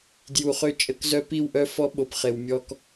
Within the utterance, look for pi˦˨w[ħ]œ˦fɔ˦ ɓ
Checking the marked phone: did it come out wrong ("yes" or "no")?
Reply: yes